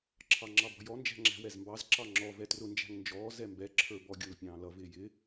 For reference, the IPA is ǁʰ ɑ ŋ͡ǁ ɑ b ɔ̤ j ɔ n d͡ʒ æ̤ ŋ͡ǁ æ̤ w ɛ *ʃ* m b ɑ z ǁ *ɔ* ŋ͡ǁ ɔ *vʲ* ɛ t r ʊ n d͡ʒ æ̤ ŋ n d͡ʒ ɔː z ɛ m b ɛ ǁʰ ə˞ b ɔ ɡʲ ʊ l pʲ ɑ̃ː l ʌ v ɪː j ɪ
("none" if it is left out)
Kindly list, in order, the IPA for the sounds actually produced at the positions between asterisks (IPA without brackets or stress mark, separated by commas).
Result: z, ɑ, v